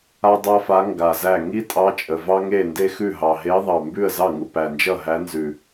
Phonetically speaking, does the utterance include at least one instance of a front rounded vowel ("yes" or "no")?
no